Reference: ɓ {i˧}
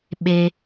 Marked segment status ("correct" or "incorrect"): incorrect